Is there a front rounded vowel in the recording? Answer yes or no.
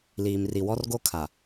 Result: no